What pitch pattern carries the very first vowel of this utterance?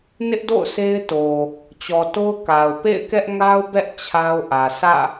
high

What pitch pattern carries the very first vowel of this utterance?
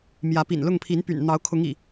rising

